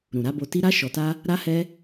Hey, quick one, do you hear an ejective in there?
no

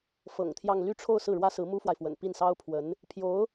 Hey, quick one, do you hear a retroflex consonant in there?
yes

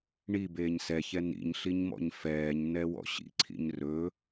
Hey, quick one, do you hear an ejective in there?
no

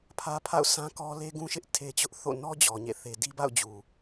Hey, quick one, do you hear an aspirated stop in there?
yes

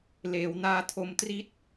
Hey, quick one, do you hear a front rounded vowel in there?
no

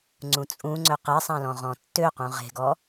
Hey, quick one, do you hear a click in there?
yes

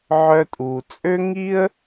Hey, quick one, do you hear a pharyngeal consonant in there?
yes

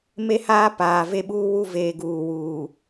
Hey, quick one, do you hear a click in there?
no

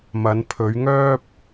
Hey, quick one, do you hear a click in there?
no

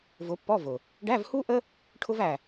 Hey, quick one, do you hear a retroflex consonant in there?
yes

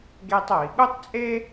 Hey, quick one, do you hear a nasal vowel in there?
no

